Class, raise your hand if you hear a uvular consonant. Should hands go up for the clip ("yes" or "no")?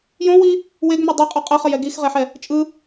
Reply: yes